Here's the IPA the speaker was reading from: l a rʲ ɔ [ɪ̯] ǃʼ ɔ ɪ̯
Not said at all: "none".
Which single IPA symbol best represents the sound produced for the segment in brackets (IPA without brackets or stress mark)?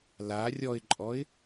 ɪ̯